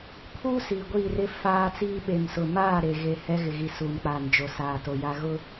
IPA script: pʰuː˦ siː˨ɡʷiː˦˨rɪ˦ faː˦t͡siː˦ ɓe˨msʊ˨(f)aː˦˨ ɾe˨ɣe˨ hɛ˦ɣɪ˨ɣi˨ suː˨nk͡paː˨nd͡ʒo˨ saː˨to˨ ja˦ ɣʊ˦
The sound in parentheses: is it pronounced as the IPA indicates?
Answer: no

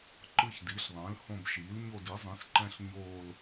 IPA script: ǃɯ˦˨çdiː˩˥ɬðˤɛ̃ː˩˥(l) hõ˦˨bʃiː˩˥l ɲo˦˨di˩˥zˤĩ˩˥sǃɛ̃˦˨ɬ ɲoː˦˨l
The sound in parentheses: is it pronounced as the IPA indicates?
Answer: yes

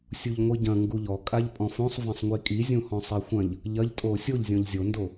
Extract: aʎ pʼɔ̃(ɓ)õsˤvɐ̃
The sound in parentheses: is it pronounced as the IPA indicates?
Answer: no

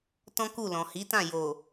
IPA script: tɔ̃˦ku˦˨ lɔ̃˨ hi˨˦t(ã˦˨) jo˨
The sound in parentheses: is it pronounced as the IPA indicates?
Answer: yes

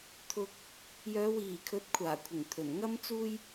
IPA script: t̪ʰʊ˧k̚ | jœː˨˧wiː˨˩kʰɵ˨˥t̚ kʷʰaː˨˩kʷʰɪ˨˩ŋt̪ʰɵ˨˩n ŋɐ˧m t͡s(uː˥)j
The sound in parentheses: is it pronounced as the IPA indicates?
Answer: yes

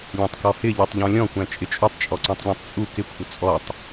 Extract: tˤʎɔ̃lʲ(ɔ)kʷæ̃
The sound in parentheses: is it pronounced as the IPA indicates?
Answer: no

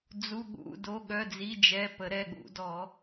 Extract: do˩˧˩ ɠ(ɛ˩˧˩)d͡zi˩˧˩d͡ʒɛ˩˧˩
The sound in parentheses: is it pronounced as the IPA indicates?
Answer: no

